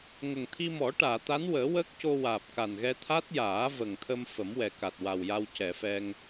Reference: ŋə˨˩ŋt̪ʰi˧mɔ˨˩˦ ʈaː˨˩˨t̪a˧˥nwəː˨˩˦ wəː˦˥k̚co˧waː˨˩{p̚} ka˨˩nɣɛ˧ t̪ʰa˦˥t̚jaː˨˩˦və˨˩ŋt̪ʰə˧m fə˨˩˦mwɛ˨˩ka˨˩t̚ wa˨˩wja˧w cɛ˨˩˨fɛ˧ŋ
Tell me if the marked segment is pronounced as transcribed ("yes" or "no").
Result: yes